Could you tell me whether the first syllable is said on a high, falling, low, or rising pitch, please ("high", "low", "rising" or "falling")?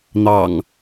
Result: low